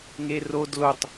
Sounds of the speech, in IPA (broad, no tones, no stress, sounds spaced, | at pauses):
ŋ e r o d l o tˤ